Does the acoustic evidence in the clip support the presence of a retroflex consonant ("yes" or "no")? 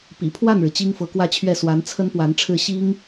yes